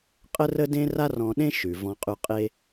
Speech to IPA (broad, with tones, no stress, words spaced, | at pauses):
qʼə˥rə˥dẽ˥ ra˥rɔ̃˧ɗẽ˥ ʃʉ˩ vɔ̃˧qʼʉ˧qʼe˥